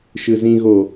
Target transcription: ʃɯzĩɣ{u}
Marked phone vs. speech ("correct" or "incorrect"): incorrect